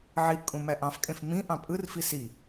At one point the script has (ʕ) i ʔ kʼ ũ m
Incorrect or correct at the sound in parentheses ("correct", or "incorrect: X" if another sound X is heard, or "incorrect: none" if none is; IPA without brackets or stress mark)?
correct